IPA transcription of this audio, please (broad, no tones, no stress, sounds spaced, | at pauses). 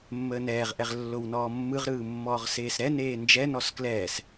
mː əː n ɛː ʁ ʔ ɛ ʁ lː o w n ɔː mː ɯ ʁ ɾ ɯː mː ɔː ʁ s eː s ɾ ɛ n eː n d͡ʒ ɛ n ɔ s k l ɛː s